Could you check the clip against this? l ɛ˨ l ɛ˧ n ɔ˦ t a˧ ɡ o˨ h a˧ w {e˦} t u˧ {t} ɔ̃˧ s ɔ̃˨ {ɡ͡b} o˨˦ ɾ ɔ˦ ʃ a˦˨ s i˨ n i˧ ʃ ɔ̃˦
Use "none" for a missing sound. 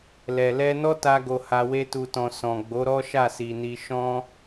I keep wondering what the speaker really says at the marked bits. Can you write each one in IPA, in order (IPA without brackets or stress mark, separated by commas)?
e˦, t, ɡ͡b